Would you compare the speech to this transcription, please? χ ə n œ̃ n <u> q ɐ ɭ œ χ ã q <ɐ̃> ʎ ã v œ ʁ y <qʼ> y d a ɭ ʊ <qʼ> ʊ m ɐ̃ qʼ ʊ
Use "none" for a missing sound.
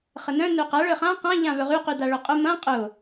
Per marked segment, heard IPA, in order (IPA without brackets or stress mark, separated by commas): ø, ã, q, qʼ